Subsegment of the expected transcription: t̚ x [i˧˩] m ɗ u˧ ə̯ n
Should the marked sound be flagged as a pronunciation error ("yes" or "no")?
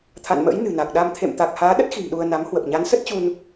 yes